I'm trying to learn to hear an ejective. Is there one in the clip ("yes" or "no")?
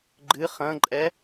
yes